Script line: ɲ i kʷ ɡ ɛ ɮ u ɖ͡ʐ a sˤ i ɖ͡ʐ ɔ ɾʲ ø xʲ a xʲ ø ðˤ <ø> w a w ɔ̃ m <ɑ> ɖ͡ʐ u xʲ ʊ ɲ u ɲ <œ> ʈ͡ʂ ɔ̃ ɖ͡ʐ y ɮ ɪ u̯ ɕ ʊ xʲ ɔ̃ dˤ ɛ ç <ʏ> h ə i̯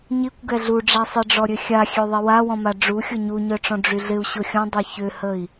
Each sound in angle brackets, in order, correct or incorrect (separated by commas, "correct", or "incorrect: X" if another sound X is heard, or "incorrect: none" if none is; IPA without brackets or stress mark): incorrect: ɛ, incorrect: a, correct, correct